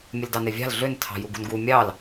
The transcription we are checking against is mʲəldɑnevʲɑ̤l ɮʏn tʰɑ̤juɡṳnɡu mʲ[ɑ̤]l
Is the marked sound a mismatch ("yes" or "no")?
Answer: yes